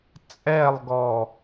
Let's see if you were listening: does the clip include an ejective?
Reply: yes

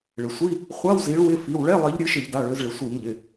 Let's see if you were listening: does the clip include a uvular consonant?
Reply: yes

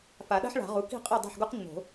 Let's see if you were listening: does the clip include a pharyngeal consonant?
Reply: yes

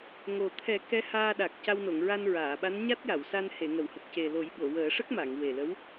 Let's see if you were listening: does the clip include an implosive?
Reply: yes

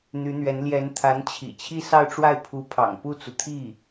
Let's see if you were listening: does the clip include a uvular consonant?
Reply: no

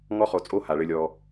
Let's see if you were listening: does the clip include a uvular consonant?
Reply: yes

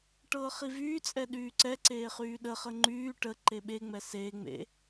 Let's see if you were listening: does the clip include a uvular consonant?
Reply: yes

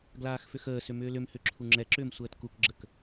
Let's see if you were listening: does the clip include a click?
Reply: yes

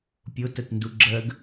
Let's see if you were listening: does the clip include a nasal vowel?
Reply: no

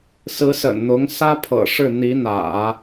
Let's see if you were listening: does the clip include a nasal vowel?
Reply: no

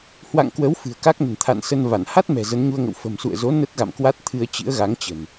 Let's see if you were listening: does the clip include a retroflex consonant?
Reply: no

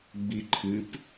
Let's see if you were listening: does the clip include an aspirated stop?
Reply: yes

